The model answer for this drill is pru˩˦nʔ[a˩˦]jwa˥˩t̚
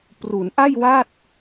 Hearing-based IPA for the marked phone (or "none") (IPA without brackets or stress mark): a˥˩